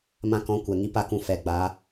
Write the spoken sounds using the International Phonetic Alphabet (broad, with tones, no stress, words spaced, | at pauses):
mã˧kɔ̃˨˦ kʷɛ˨ŋi˦pa˦˨kũ˧ fɛ˨ɡ͡ba˨˦